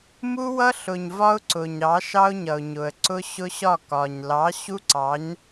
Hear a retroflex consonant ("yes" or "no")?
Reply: no